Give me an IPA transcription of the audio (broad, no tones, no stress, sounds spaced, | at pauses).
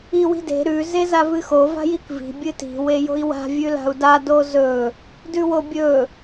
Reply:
i w i̤ d e̤ ɾ ʉ z e z a v ɨ x o v a̤ j i k v i̤ bʲ ɨ t i̤ w e j o̤ i̯ w a̤ vʲ ʉ l a̤ u̯ d a d o z ɵ | d ʉ w o bʲ ɵ